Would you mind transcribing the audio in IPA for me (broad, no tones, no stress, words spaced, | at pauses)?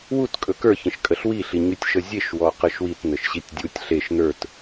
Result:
wut kʼɵkə˞ çə̃ʃkʼəɬwi ɬiɲytʲʃəzʲeʃ wɔqəʃwit nəʃɕitʲdʲutʲ ɬeʃ nə˞t